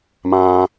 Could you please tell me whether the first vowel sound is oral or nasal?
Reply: nasal